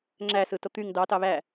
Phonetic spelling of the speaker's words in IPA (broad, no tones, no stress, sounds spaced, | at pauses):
ŋ͡ǁ æ s ɯ t o t̪ y ŋ d ɑ t ɑ β æ